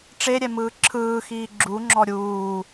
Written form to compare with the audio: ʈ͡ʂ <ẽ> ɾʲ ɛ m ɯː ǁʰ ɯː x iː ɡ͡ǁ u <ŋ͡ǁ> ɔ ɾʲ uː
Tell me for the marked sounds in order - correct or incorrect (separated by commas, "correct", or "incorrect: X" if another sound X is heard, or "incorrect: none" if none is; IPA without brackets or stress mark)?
incorrect: e, correct